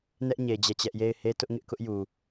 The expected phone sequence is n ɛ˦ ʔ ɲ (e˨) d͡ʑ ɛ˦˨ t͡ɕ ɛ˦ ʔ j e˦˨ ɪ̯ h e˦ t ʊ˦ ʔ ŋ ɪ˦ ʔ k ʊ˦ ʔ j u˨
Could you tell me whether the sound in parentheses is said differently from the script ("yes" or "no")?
no